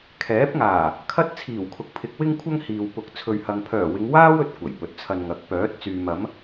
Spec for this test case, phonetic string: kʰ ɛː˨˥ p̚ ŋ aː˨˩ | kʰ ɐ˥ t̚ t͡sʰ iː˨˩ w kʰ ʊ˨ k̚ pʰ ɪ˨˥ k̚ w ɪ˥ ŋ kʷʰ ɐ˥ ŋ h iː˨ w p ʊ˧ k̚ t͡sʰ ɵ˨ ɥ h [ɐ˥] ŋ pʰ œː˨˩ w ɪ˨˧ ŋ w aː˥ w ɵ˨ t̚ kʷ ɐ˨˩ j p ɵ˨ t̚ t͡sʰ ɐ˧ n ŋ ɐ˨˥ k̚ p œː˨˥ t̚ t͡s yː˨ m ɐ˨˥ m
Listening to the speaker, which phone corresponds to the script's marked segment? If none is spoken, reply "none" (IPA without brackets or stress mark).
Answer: ɐ˨